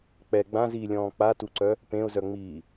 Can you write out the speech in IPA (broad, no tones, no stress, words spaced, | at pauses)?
k͡pɛ ɡ͡bãziːlʲɔ̃ː k͡patuǀœ | pẽʊ̯zœŋ͡miː